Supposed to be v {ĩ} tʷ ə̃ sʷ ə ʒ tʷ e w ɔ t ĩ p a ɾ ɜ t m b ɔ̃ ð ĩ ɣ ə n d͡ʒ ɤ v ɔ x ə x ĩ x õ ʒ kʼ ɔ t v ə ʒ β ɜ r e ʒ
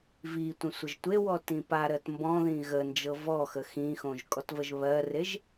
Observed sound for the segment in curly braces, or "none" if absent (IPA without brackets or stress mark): i